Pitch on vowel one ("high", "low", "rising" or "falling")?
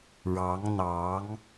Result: rising